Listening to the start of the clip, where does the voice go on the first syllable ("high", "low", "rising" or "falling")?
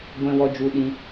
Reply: high